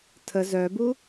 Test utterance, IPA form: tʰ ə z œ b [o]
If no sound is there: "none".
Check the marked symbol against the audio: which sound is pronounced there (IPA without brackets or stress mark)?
u